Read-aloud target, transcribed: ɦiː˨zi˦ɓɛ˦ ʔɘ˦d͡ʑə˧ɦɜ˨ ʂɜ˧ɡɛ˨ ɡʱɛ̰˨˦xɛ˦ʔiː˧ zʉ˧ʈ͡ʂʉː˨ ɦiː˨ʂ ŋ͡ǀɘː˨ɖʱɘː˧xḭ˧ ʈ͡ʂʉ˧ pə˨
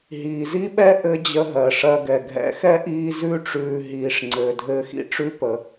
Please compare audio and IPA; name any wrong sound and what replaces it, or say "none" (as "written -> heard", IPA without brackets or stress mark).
ɖʱ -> dʱ